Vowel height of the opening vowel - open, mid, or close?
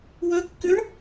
mid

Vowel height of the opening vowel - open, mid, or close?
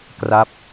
open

